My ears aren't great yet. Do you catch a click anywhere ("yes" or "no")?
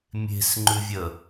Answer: yes